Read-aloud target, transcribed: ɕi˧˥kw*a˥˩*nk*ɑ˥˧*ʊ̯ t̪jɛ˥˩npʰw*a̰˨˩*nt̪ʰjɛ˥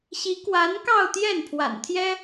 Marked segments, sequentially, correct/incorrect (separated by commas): incorrect, correct, correct